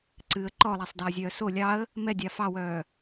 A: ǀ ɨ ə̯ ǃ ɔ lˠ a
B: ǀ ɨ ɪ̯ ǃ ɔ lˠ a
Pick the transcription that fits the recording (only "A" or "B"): A